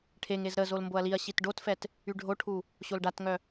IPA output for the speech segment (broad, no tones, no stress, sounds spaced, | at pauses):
ʈʰ e ŋ e z ɾ ə z o l m b o ɐ̯ l i ɐ̯ ɕ i t ɖ o t f ɛ t | y ɖʱ o ʈʰ u | ɕ o l ɖ a t ŋ œ